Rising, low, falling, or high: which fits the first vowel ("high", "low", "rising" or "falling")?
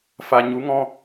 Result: low